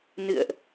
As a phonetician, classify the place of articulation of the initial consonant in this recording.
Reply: alveolar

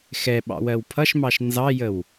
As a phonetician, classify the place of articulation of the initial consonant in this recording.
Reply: velar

